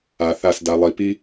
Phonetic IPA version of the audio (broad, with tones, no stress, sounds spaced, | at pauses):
a˨ θ a˦˨ s d a˨ lˠ i˨ p i˦